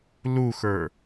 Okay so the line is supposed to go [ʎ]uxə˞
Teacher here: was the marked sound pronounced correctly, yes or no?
no